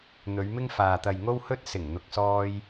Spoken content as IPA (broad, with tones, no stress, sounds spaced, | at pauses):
n̪ ɵ˨˧ ɥ m ɪ˥ ŋ f aː˨ t̪ ɐ˨ j ŋ o˥ w h ɵ˥ t̚ s ɪ˨˩ ŋ n̪ ʊ˧ k̚ s ɔː˥ j